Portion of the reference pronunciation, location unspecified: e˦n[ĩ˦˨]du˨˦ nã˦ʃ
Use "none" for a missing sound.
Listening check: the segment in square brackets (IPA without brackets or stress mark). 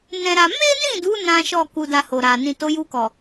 ĩ˦˨